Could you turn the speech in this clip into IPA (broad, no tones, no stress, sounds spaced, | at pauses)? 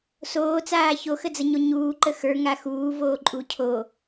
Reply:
s oː t͡s aː ç o x ə d͡z ə ɲ o ɲ uː ǃ ə x ə˞ ŋ a x uː v oː ǃʼ u cʰ o